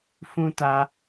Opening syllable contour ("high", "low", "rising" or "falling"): high